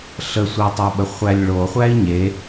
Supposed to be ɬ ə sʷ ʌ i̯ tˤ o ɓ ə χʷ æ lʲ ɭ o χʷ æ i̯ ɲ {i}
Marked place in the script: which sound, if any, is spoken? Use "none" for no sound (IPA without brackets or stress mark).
e